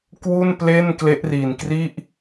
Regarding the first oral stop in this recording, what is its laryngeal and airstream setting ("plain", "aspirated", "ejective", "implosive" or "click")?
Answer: plain